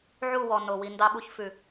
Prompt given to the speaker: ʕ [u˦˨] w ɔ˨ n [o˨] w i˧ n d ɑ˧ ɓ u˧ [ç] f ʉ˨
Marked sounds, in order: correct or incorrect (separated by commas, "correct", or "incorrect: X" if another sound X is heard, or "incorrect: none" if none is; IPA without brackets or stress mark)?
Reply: correct, correct, correct